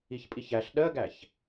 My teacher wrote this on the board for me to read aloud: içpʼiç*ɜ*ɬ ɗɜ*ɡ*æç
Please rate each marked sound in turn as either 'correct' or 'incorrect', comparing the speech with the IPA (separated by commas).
incorrect, correct